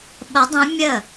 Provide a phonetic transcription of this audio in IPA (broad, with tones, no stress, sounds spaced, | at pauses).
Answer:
ɓ ə˧˥ dˤ õ˧˥ mʲ ə˥˩